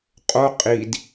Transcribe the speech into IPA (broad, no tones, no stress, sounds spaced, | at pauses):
qʼ o qʼ i d